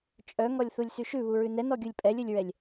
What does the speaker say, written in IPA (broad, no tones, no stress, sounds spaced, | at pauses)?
t͡ʃʼ œ ŋ ɔ lʲ θ u lʲ s y ʃ ʉ β u ɹ ʉ n ɛ n ɔ ɡʲ u lʲ pʼ ɛ lʲ ɵ lʲ ɹ ɛ lʲ